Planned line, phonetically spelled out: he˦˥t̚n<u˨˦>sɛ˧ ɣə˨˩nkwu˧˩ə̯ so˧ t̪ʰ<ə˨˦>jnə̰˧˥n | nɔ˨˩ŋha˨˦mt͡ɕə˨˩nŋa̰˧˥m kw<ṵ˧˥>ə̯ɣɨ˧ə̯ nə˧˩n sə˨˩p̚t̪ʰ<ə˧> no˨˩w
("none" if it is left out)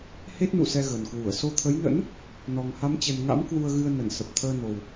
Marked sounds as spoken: ṵ˧˨, ə˨˦, u˧, əː˧

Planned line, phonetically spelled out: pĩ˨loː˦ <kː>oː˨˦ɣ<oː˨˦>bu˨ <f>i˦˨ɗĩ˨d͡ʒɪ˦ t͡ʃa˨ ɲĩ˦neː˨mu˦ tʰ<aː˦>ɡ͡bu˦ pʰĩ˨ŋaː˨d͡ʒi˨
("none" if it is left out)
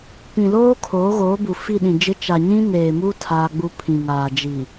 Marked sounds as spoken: kʰ, oː˨˦, f, aː˦

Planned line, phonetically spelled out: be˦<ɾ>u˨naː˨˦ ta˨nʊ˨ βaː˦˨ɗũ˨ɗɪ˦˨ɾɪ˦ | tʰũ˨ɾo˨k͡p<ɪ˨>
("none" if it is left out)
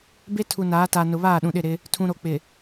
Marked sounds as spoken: tʰ, ɪ˨

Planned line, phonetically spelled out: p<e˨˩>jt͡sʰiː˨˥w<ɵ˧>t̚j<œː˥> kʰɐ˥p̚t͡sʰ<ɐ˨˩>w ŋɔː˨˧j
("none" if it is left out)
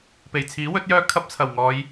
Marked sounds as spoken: e˨˩, ɵ˨˥, œː˥, ɐ˨˩

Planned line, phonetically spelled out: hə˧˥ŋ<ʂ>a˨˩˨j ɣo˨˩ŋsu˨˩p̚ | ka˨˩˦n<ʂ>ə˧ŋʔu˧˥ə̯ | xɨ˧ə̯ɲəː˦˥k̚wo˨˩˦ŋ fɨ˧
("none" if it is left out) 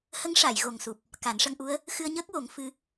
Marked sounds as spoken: ʂ, ʂ

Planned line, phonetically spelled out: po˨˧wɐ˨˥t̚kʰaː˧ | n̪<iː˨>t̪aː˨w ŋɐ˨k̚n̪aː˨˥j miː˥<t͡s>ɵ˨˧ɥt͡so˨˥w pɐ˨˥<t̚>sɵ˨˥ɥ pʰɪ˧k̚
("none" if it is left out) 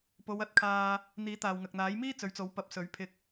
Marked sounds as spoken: iː˨˥, t͡s, p̚

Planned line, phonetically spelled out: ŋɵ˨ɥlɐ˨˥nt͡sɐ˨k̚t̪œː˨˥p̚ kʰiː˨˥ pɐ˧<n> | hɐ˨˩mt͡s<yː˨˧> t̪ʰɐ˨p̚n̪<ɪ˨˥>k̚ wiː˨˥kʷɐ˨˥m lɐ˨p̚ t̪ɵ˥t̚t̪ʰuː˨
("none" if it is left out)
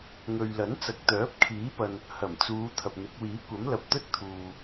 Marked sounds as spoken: n, uː˨˧, ɪ˨˥

